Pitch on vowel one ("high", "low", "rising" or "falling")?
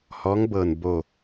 rising